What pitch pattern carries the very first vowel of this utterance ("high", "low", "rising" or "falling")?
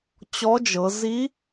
rising